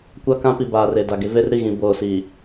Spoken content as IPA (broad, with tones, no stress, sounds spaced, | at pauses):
kʷ a˦ k ã˦ p i˨ b aː˨ r e˨ d a˨ ɡ e˦ v e˦ r ɾ i˨ ɣ ĩ˨ b oː˨ s i˨